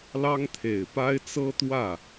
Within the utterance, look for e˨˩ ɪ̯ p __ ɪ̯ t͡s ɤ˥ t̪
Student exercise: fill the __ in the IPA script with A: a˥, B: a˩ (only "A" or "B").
A